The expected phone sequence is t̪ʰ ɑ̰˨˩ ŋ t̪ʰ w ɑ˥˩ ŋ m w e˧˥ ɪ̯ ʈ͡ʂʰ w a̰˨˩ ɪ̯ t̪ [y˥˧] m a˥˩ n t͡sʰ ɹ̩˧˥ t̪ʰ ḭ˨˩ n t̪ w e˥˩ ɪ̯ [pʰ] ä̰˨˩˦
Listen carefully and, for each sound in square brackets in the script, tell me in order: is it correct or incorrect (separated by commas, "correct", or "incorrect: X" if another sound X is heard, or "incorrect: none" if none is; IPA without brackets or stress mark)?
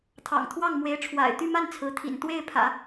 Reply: correct, correct